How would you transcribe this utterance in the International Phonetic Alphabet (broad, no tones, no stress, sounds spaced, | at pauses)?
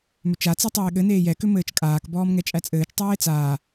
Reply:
m ʏ t͡ʃ a t͡s ɛ tˤ eː ɠ ɘ n eː j ɛ k ʏ m ɘː t͡ʃ kʼ aː k b ɔː m ŋ ɛ t͡ʃʼ æ t͡sʼ ɘː t͡ʃ tˤ æː e̯ t͡s aː